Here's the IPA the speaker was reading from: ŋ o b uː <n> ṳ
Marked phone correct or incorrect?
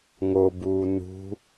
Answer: correct